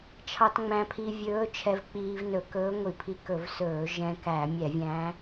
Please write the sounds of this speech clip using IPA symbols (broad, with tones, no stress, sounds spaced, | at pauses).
t͡ʃʰ ɑ˧ t ŋ͡m æ̃˧ pʰ i˧ vʲ ɵː˧˥ t͡ʃʰ ɛ˧ v k͡p iː˧ v n ɵ˧˩˧ k ɵː˧˥ ŋʷ i˧˩˧ pʰ i˧ k ɵ˧˩˧ v s ɵː˧˩˧ ʒ ɛ̃˧ k æ˧˩˧ mʲ ɛ˧˩˧ vʲ æ̃˧˥